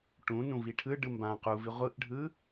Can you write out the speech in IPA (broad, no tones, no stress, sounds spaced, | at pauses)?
ʈ ũ n ũ v i ʈʰ ɯ ɖ ɯ m b ã q u v i ʁʷ ɯ ʔ ɖʱ ɯ